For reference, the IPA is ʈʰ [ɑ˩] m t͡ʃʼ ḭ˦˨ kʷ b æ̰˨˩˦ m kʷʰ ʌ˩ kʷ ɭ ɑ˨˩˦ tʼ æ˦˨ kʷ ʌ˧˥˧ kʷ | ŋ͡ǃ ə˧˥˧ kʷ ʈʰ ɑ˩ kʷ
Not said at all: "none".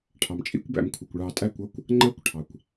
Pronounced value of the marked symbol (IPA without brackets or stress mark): ɑ˩